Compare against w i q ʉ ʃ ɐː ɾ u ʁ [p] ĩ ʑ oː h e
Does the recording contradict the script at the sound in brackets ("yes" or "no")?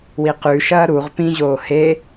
no